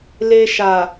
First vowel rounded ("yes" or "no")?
no